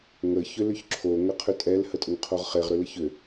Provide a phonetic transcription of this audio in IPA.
ŋ ə ç ʏ l ʏ ç ǁʰ o ŋ ə qʰ ʏ tʼ ɛ l h ə tʼ ʊ ŋ qʰ o ʁ χ e ʁ ɾ ʏ l ə ç ʏ

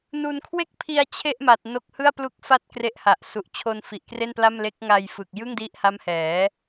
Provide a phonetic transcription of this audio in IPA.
n u˧ n kʰ w e˥˩ k̚ pʰ i˧ a̯ t͡ɕʰ e˥˩ ʔ m a˨˩ t̚ n o˦˥ k̚ h ɯ˥˩ a̯ p l u˥˩ k̚ f a˥˩ t̚ k r e˦˥ ʔ h a˨˩ ʔ s u˨˩ ʔ t͡ɕʰ o˧ n f i˨˩ ʔ k r e˥˩ n p l a˥˩ m l e˦˥ k̚ ŋ a˧ j f ɯ˨˩ k̚ j ɯ˥˩ ŋ d i˦˥ ʔ h a˦˥ m h ɛː˩˦

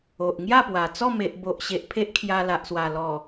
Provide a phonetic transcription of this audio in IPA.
o˨ ʔ ŋ j a˥˧ p w a˨˩ t͡s ɔ˥˧ m e˨ ʔ b o˨ ʔ ɕ e˨ ʔ pʰ e˦ ʔ kʰ j a˧ l a˨ ʔ s w a˨˩ l ɔ˨˩

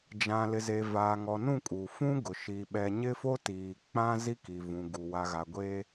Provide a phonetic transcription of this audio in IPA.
d͡ʒ ã˨ l ɪ˨ z e˨ v aː˨ ŋ ɔ˨ n ũ˦˨ kʼ uː˨ f ũ˦ ɡ ʊ˨ ʃ i˨ ɓ ɛ˨ ɲ ɪ˦ f o˦ t iː˨ k͡p ã˦ z i˦ k i˨ v ũ˨ ɡ u˨ w a˨ ɣ a˨ ɡʷ eː˦

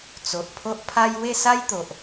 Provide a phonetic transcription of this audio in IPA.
t͡s o˨ ʔ pʰ o˦ ʔ pʰ a˧ j w e˥˧ s a˦ j t̪ o˨ ʔ

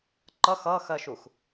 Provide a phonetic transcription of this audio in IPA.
ǃ ʌ x ʌ x ɜ ʃ u x

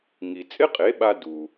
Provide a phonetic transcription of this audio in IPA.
ŋ i˩ t͡sʼ ɪ˥ qʼ e˩˥ ɓ a˧ d u˩

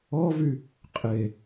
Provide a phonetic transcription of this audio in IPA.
ɔ v y | qʼ e

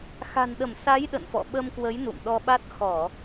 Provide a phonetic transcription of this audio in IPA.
x a̤˨˩ n ɗ ə˧˩ m s a˨˦ j ɗ ə̰˧˨ n f ɔ̰˧˨ ɓ ə˧ m k w ə˨˦ j n ṵ˧˨ m ɗ ɔ˧ ɓ a˦˥ t̚ x ɔ˧˩˨

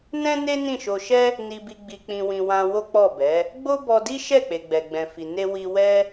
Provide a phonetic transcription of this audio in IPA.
n ɛ̃˦ n e˦ n ĩ˦˨ ʃ o˧ ʃ ɛ˦ | n i˧ b i˧ ɡ͡b i˧ k͡p ĩ˧ w ĩ˧ w ã˧ w o˦ k͡p ɔ˦˨ b ɛ˨˦ | ɡ͡b o˦ b ɔ˧ d i˦ ʃ ɛ˦˨ k͡p e˨ ɡ͡b ɛ˨ ɡ͡b ɛ̃˨ f i˨ n e˧ w i˧ w ɛ˦

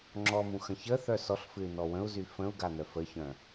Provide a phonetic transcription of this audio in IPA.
ŋ͡ǁ ɔ m ũ x ə̃ ç ə θ œ s ɔ ɬ f ɨ y̯ n ɔ w ə̃ u̯ z y f ə̃ u̯ ɡ a n œ f ə ç œ̃

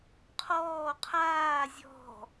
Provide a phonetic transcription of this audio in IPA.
qʰ ɔː qʰ aː zʲ ɔ̤

